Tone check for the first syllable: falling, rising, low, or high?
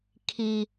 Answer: high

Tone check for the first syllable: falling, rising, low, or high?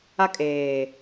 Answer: high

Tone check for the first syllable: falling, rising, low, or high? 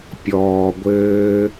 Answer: low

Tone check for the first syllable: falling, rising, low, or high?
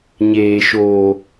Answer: low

